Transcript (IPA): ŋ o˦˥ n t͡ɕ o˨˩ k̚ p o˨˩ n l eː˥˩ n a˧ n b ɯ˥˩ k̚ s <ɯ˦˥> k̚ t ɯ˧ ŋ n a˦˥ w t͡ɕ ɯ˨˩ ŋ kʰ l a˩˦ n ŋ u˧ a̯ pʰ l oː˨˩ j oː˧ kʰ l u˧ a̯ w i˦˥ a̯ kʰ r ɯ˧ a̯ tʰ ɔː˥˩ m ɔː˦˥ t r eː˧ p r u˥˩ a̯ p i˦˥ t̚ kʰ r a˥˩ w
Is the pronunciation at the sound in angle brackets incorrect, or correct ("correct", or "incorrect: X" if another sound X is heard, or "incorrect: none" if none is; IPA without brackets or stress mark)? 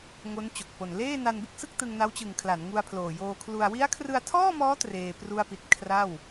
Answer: incorrect: ɯ˥˩